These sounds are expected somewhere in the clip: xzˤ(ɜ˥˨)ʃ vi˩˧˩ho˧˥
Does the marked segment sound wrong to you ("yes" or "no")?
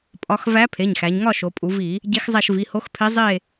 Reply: yes